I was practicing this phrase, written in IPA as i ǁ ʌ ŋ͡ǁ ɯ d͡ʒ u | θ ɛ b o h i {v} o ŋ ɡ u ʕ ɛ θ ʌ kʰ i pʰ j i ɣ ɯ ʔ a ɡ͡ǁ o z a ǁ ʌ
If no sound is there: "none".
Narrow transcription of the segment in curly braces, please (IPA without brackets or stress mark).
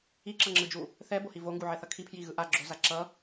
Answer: v